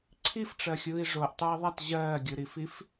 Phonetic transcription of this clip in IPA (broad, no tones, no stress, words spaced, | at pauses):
ǀʰifʈ͡ʂɜxʲɯːi̯ ʐoʔtˤə˞i̯ðˤat ʑɜːɡʲɯɾifif